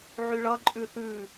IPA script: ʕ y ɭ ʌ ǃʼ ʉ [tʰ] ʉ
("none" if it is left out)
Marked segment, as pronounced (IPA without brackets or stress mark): θ